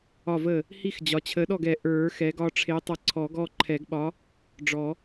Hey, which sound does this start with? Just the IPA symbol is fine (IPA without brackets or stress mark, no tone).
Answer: ɒ